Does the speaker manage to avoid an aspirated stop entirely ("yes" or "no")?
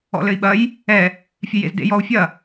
yes